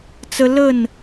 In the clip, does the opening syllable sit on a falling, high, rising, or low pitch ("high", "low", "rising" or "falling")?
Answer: high